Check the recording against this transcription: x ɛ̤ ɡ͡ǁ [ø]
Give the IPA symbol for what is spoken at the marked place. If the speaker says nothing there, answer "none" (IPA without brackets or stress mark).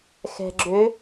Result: ø